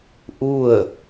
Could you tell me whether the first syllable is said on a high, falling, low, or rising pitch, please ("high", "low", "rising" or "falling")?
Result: falling